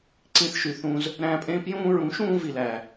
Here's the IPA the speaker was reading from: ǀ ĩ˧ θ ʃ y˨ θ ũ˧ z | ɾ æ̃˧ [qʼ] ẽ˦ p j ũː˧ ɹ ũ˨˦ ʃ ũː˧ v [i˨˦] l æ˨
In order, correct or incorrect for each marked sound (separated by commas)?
incorrect, incorrect